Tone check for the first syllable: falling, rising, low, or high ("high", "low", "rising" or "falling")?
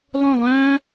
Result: falling